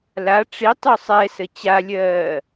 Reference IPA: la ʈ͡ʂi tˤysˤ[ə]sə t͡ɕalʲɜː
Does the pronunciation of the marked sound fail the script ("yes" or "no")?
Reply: yes